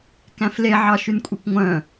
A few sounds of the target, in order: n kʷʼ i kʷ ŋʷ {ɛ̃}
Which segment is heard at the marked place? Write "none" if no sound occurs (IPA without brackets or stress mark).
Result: œ̃